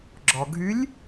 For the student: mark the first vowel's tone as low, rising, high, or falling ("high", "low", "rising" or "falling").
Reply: low